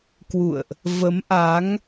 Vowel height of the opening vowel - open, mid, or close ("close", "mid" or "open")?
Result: close